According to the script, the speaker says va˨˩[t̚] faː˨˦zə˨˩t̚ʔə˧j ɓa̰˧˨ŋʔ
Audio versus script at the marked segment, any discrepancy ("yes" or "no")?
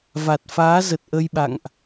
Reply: no